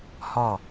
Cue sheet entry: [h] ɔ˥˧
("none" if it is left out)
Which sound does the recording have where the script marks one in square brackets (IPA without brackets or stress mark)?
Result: h